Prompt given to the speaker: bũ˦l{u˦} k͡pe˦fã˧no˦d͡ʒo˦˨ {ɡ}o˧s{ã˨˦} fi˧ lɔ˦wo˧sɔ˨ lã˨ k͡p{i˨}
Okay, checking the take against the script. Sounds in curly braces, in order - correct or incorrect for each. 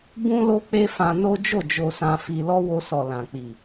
incorrect: o˦, incorrect: d͡ʒ, incorrect: ã˧, correct

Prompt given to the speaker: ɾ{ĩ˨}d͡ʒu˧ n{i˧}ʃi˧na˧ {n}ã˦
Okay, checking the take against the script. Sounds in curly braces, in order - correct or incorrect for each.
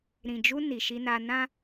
correct, incorrect: i˨, correct

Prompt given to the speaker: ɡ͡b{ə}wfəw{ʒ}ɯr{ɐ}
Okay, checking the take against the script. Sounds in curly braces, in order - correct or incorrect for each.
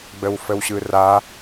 correct, incorrect: ɕ, incorrect: a

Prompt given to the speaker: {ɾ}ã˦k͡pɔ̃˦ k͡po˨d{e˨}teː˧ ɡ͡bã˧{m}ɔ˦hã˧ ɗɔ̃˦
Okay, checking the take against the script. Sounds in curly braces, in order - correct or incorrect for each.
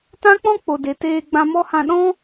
incorrect: t, correct, correct

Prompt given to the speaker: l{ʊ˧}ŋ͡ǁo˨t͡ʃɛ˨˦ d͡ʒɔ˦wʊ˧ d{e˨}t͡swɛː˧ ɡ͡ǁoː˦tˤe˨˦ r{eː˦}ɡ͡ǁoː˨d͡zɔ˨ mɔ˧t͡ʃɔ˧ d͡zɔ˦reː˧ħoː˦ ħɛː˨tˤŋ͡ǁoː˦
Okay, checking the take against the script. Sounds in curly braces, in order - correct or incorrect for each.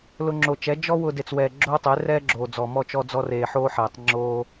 correct, incorrect: e˧, incorrect: ɛː˦

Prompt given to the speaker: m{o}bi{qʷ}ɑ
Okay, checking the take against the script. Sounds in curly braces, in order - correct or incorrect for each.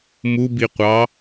incorrect: u, correct

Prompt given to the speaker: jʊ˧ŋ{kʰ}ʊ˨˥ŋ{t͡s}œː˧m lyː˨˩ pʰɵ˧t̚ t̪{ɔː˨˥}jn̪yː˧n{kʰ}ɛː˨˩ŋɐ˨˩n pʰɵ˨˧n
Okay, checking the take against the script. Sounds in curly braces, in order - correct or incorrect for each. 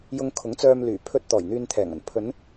correct, correct, incorrect: ɔː˨˩, incorrect: t̪ʰ

